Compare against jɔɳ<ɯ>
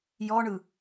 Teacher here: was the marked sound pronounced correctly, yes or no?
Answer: yes